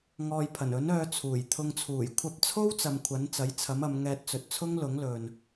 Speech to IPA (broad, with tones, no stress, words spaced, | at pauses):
ŋɔː˨jpʰɐ˨˩nɵ˨˥n œː˧t͡sʰuː˨˩jt̪ʰʊ˧ŋ t͡sʰuː˨˩jkʷʰɐ˧p̚t͡sʰo˥wt͡sɐ˨m kʷʰɐ˨˥nt͡sɐ˨˥jt͡sʰɐ˨˥mɐ˨˧m ŋɛː˧t̚t͡sɵ˨t̚t͡sʰʊ˥ŋlʊ˨˥ŋ lɵ˨n